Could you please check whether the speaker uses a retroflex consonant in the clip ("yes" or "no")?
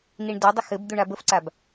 yes